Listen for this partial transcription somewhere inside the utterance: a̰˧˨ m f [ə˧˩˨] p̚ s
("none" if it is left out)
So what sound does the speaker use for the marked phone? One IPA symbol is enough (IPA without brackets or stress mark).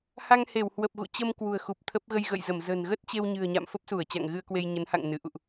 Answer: ə˦˥